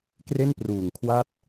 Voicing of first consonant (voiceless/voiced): voiceless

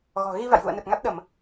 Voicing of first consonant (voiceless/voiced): voiced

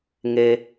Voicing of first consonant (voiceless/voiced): voiced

